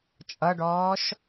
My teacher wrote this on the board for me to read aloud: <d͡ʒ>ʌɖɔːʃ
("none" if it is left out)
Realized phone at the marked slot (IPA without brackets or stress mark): t͡ʃʼ